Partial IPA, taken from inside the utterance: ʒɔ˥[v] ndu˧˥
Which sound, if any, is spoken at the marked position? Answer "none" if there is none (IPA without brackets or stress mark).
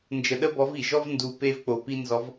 v